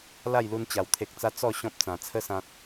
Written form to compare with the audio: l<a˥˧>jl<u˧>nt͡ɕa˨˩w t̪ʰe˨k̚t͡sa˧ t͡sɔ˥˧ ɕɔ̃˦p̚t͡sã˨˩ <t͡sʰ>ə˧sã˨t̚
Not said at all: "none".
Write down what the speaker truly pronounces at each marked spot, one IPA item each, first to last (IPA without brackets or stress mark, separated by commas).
a˥˧, u˧, t͡sʰ